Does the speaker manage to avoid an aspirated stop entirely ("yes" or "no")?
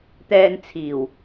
no